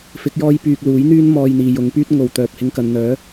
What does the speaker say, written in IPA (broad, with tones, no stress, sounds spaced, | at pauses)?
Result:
f ɪ˨˥ k̚ j ɔː˥ j p yː˧ k̚ l uː˨˥ j n̪ yː˥ n m ɔː˧ j n̪ iː˨ j ʊ˨˧ ŋ p yː˥ t̚ ŋ o˨ w t̪ œː˨ p̚ h ɪ˧ ŋ k ɐ˨ n n̪ œː˨˥